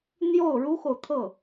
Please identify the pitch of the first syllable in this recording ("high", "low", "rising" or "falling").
falling